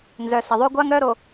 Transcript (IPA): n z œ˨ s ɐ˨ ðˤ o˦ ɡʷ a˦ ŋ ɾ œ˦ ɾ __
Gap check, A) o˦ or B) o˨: B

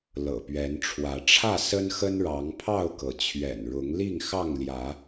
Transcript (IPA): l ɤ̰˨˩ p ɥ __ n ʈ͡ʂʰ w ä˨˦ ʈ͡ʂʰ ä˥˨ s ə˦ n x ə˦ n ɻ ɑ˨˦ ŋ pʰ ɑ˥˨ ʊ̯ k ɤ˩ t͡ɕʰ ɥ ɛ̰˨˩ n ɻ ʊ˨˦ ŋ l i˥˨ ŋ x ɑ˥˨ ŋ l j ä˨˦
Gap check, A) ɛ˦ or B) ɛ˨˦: B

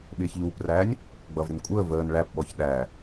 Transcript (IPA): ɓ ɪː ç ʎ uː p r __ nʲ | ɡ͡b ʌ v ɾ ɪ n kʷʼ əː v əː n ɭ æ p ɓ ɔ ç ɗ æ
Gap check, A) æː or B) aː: A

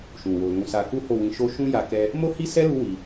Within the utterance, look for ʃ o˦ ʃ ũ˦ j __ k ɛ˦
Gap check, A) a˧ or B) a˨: A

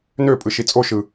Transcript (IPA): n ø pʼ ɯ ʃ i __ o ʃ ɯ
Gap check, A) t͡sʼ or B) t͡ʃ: A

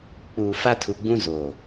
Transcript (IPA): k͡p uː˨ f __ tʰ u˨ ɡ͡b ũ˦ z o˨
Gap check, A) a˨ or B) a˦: B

